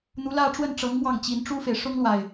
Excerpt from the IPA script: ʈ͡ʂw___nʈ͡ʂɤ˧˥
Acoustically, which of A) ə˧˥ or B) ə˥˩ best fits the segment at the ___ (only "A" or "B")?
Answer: B